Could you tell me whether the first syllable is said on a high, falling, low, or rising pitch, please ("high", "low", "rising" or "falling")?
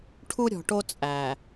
high